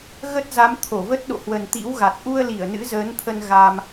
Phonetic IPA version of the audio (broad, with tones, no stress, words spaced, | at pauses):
ɣə˦˥t̚za˨˦m t̪ʰo˧˩ və˦˥t̚ ɗo̰˧˨hwə˨˩nt̪ḭ˧˥w ɣa˨˩t̚ ʔu˧ə̯ li˧˩ə̯nɨ̰˧˥zəː˨˦nt̪ʰə˧n ɣa˧m